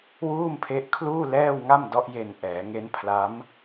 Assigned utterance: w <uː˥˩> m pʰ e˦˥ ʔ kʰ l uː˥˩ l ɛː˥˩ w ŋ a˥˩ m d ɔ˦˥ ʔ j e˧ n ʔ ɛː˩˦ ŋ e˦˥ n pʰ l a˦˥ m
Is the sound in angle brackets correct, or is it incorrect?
correct